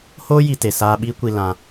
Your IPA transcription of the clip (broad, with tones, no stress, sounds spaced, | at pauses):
h oː˦ j i˧ t e˨ s aː˧ ɓ iː˦ kʷ i˧ l ã˧